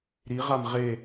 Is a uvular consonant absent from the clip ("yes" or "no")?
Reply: no